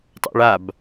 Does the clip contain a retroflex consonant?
yes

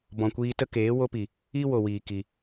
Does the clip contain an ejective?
no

